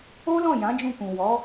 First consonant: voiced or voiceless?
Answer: voiced